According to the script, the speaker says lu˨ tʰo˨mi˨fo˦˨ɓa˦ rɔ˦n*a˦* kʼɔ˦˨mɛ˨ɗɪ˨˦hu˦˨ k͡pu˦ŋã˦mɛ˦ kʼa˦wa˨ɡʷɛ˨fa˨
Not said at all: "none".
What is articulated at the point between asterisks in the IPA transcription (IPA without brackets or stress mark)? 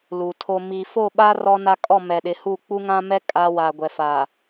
a˦